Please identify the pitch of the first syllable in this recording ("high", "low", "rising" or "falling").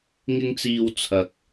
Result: high